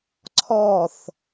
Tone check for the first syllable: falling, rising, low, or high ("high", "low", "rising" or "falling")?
falling